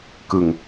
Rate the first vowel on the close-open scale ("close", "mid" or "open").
close